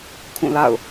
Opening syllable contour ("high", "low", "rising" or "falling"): falling